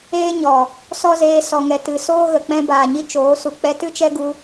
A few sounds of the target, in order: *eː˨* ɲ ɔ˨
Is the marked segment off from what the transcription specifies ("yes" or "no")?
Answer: yes